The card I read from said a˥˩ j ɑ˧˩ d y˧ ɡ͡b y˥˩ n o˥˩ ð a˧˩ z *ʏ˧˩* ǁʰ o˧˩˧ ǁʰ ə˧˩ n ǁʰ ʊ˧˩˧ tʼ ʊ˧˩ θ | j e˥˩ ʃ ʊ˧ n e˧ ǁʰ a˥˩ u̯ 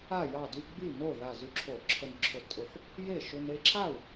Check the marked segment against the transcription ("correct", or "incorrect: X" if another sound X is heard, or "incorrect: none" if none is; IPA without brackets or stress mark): incorrect: y˧˩